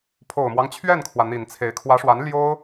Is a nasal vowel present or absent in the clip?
absent